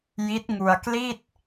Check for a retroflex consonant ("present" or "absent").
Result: absent